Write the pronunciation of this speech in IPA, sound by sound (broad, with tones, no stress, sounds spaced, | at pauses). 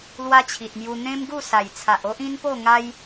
l w a˦ t͡ɕʰ i˨ t̚ m j u˧ n̪ ẽ˦ m ɡ u˥˧ s a˨˩ j t͡sʰ a˨ ʔ o˦ ʔ ĩ˦ n p o˥˧ ŋ a˦ j